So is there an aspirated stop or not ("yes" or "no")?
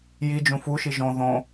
no